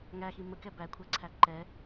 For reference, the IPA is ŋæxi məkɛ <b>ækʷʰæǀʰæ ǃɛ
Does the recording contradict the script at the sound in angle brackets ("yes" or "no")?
no